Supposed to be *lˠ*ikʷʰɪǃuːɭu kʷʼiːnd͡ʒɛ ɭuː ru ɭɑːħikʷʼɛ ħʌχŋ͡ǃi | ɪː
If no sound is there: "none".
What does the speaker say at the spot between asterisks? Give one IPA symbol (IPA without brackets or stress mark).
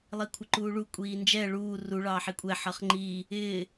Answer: lˠ